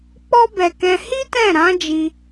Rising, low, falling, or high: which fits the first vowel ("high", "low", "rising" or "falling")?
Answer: high